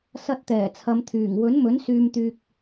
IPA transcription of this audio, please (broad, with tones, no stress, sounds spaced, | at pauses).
s ɐ˧ t̚ t̪ ɛː˨˩ t͡sʰ ɐ˨˧ m t̪ʰ yː˨˩ ŋ w ɵ˨˥ n m ɵ˨˥ n s yː˧ m t̪ yː˧ k̚